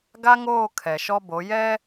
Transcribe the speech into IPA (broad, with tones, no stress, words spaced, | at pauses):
ɡa˦ŋoː˦˨ kʰɛ˨ʃɔ˦bo˨˦ jɛ˦